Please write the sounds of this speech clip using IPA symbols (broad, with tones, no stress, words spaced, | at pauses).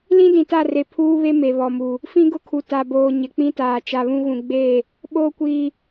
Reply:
lĩ˦dĩ˨ta˦˨re˨ pʰuː˦βe˦ me˨βɔ˨mu˨ | fĩ˦ɡʊ˦kʰu˨ ta˨boː˨ ɲɪ˨k͡pĩ˦taː˨ t͡ʃa˨βũ˦ɣũ˨ ɡ͡be˦˨ | ɓoː˦kʷiː˨